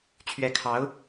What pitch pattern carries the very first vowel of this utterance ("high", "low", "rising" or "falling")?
rising